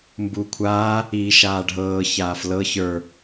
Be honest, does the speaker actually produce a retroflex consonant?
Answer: yes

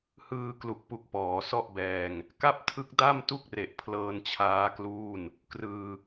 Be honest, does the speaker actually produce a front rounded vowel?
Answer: no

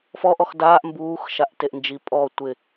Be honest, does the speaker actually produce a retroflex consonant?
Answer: no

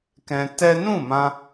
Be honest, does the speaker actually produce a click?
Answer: no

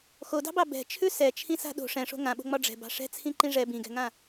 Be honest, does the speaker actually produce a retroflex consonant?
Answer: yes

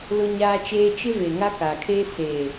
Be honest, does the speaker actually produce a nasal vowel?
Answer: no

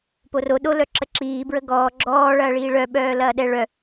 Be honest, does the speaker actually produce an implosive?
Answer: yes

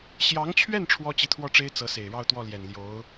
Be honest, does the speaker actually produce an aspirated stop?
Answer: yes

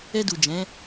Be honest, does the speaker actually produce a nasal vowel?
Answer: yes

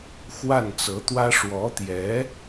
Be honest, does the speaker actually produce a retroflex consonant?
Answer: yes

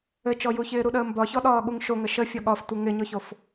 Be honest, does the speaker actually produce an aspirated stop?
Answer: no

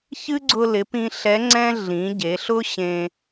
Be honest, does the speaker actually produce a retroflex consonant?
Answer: no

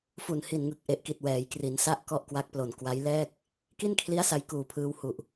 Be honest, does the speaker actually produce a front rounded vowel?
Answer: no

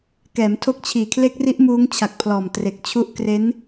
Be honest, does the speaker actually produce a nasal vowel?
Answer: no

